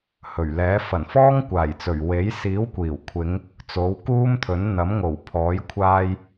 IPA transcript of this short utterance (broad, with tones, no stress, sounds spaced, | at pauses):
h ɵ˨˩ ɥ l ɛː˨˥ f ɐ˨˩ n f ɔː˥ ŋ kʷ aː˨˩ j t͡s ɵ˨˩ ɥ w e˨˥ j s iː˨˥ w kʷ iː˨˩ w kʷʰ ɪ˨˧ ŋ | t͡s o˨˥ w k uː˥ m t̪ʰ ɵ˨˥ n n̪ ɐ˨˥ m ŋ o˨˩ w pʰ ɔː˨˥ j kʷʰ aː˧ j